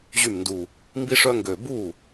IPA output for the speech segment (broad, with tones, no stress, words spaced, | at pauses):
ʑy˥˩mndu˧˩ | mbi˥ʂœ˥ ŋɡø˧˩ bu˥˩